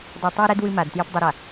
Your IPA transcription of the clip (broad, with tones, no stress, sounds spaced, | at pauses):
dˤ i˨ tˤ ø˦ ɾ ɛ˦ d w ɨ˦ m a˨ d t j ɨ˦ p dˤ ɨ˦ ɾ a˨